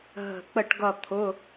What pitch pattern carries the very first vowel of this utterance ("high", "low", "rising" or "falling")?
low